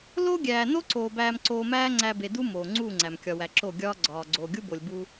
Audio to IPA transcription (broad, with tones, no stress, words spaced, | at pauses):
loː˦ɡʲæː˨ no˦ǀoː˨ bæː˧mǀoː˧mæː˦ŋ͡ǀæ˧ be˨du˦ moː˨ŋ͡ǀuː˦˨ŋ͡ǀæ˨m kʲɒ˨wæ˨ ǁo˦˨ɡʲɒː˦ ɡ͡ǀɒː˨ɡ͡ǀoː˨ɡʲu˦bo˨lʲ bu˧